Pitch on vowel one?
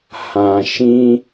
low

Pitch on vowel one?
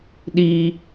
high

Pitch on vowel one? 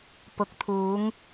rising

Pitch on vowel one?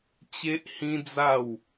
high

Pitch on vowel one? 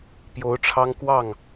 rising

